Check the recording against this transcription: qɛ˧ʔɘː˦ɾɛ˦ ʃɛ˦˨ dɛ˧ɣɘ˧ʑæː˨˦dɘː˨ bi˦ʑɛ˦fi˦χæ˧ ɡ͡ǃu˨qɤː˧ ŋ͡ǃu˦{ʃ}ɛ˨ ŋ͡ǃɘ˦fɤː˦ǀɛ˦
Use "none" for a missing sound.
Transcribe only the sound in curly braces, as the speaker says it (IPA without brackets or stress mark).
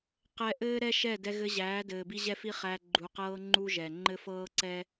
ʒ